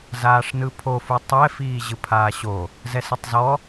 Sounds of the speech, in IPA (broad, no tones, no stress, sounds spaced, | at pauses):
z aː ʂ n ɯ pʰ o f u tˤ ɛ f iː ʑ ɯ pʰ aː ɕ o | z ɛ s ɯ tˤ z ɔ